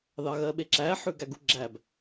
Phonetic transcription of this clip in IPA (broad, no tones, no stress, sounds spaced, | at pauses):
ð ɑ ɣ ɜ ɓ e ǁ æ ħ ʉ ɡ æ ɡ u ɡ͡ǁ æ b